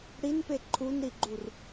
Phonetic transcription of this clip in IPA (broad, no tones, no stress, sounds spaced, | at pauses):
ɽ i n p e ǃʰ u n ɾ i ɡ͡ǃ u r